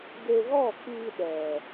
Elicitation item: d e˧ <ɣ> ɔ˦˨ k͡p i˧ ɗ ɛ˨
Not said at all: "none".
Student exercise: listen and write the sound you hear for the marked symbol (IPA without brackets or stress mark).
ɣ